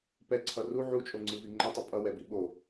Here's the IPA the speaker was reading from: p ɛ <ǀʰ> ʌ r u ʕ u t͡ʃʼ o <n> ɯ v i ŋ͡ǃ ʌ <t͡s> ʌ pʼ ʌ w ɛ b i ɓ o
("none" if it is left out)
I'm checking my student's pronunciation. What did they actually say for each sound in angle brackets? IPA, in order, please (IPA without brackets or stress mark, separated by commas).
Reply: ǀʰ, ŋ͡ǀ, tˤ